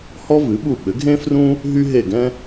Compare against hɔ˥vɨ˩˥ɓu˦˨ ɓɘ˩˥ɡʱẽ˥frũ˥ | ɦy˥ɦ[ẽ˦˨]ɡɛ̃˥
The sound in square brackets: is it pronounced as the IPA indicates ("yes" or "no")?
no